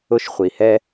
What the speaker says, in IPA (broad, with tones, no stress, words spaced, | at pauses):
ʊ˥ʃχʷi˩hɛ˥